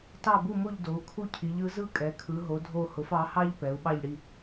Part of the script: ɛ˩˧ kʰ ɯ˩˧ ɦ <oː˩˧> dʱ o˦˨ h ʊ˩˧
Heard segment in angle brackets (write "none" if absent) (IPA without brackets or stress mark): o˩˧